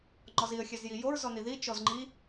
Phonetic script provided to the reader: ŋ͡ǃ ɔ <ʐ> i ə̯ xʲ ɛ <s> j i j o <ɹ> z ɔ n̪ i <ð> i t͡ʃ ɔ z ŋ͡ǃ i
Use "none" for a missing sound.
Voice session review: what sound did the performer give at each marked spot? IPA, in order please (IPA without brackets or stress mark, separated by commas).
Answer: z, z, ɹ, ð